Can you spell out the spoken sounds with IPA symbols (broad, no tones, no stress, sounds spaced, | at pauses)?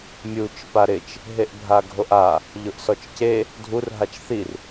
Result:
mʲ u t͡ʃ p a ɾ ɪ t͡ʃ | ɦ e ʔ bʱ a ɡʱ o ʔ a | ʎ ʊ ʔ s ɔ t͡ʃ c e | dʱ u r ɦ a t͡ʃ θ i r